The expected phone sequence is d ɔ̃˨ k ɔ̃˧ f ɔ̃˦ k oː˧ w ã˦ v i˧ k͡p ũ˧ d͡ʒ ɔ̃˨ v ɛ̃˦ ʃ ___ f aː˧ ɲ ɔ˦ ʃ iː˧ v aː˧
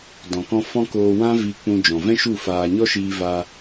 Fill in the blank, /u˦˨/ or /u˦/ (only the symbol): u˦˨